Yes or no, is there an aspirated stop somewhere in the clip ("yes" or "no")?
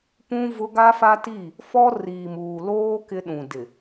no